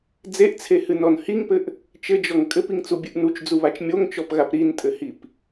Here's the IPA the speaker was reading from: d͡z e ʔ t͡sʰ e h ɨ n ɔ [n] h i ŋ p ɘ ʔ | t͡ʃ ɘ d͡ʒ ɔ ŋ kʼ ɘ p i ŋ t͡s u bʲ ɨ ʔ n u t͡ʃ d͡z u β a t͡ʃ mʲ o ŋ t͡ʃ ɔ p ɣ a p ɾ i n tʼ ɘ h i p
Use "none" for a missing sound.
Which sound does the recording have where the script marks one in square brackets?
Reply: n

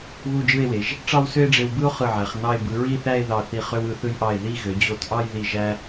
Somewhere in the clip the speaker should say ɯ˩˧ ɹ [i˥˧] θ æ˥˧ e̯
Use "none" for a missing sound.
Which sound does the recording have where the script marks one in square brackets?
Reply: i˥˧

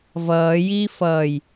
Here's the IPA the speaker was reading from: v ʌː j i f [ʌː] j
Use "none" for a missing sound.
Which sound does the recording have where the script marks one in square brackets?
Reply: ʌː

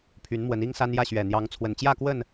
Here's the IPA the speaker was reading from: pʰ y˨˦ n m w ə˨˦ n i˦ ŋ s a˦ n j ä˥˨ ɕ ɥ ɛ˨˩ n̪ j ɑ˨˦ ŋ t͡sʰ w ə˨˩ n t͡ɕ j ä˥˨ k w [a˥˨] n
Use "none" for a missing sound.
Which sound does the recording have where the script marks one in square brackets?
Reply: ə˥˨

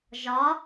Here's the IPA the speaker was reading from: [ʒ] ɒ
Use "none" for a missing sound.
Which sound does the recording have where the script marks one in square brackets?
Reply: ʒ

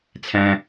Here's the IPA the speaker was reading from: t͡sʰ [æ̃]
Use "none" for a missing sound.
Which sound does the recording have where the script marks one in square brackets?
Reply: æ̃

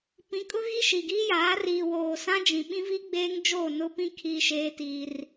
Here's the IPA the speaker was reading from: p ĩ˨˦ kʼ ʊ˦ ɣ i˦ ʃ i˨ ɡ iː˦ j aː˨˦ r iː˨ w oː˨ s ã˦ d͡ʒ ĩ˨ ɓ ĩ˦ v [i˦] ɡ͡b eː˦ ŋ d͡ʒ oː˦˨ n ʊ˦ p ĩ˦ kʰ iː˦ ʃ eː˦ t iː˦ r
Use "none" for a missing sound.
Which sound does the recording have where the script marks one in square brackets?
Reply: i˦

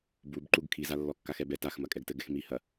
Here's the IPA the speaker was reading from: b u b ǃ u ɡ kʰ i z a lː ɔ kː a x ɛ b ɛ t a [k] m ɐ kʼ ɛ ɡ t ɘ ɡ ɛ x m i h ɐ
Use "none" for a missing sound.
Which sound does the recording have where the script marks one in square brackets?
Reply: x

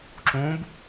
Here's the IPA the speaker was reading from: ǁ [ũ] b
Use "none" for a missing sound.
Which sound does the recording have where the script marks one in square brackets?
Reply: ũ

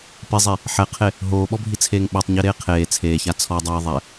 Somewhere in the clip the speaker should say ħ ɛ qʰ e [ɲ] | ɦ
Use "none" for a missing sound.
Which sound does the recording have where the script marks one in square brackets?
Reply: none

